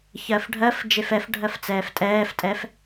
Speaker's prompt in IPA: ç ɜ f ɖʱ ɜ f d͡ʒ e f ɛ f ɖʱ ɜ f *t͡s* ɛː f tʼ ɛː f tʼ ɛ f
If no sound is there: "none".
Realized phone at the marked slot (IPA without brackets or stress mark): t͡s